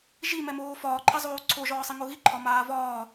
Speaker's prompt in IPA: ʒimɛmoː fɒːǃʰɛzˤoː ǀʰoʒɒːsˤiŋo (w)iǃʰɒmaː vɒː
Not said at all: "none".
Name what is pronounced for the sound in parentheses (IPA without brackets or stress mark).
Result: ɣ